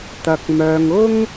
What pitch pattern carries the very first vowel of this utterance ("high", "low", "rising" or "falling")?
low